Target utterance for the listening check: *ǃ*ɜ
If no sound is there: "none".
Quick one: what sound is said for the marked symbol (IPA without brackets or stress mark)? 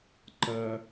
ǃ